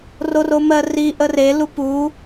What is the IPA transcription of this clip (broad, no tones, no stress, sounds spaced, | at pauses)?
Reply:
r o r o m ɜ r i ʔ ə r e l u p u